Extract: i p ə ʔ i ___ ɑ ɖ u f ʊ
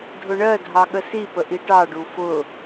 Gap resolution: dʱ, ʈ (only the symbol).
ʈ